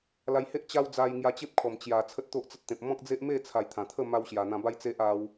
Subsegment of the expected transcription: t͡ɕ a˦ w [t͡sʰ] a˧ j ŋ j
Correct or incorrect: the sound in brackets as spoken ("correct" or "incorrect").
incorrect